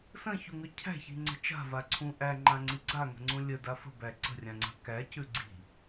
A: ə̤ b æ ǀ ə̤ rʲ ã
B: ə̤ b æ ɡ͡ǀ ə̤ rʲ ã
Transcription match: A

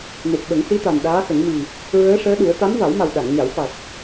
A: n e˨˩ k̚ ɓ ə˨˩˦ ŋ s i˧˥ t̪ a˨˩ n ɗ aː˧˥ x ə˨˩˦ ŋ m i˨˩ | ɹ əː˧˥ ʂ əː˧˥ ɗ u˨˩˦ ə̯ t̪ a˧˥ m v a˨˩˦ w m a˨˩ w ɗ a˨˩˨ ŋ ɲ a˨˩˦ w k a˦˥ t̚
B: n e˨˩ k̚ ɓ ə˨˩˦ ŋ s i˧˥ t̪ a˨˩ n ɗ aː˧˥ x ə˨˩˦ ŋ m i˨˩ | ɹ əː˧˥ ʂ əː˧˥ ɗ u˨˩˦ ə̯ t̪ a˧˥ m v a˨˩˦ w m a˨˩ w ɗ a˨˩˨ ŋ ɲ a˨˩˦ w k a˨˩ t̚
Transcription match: B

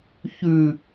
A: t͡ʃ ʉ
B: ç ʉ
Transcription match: B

